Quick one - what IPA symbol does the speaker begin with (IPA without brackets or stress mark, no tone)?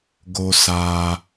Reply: ɡ